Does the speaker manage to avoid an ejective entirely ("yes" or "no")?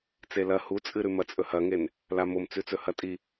no